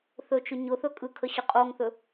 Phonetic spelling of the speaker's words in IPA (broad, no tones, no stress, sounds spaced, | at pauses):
θ ɵ t͡ʃ ʊ ɲ ʊ θ ɵ kʼ ɯ kʰ ə ɕ ə qʼ o ŋ θ ɵ